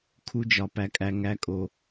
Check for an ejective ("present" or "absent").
present